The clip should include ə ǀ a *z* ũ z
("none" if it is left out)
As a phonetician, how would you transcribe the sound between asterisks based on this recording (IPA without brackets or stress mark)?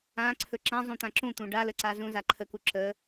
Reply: z